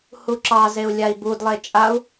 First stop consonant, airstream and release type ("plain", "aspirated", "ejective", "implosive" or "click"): click